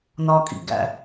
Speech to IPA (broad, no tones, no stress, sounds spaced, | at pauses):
n ɒ kʼ ḭ ɡ æ̰